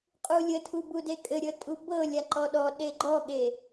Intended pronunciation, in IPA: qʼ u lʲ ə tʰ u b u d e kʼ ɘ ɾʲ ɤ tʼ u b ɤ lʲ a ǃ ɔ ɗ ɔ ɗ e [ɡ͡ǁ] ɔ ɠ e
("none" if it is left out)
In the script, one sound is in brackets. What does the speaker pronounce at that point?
ɡ͡ǃ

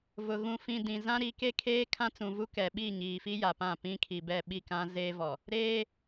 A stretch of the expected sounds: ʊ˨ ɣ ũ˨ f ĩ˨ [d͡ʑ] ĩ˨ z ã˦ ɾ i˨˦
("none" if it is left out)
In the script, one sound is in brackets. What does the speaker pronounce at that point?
d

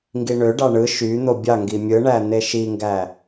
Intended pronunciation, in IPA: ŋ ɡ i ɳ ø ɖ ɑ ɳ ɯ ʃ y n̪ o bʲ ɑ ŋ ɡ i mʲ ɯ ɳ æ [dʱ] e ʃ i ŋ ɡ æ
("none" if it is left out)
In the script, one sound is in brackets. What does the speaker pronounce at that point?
n̪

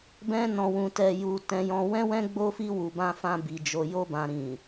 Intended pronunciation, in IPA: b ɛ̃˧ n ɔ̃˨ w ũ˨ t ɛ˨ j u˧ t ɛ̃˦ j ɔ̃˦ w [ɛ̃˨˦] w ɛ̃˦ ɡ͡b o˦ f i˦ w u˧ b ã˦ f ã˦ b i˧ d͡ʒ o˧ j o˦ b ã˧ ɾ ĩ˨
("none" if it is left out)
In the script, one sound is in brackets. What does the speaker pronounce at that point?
ɛ̃˦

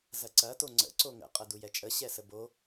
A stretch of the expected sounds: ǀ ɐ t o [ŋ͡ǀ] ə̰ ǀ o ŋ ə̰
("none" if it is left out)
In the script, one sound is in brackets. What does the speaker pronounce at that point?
ŋ͡ǀ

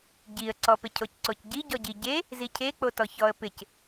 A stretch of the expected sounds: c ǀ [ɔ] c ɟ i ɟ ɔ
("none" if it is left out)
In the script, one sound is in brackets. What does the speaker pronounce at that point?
o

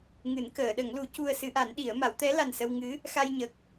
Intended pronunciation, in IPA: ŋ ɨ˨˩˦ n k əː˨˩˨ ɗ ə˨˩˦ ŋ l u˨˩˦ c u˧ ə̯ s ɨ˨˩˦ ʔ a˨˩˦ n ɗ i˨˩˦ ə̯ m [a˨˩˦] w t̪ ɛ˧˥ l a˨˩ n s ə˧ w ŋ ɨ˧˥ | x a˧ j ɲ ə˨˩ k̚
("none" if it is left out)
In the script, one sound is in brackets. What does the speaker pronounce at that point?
a˨˩˦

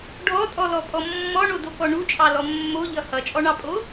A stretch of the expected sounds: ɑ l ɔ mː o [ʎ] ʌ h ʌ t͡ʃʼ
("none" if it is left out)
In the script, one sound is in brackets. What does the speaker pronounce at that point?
ʎ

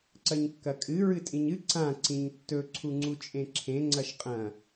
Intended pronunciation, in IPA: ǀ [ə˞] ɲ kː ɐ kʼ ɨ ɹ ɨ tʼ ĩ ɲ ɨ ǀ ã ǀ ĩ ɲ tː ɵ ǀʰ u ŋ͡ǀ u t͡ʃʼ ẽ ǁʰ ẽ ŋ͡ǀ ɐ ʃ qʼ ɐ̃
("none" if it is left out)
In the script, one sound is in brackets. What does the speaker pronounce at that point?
ɐ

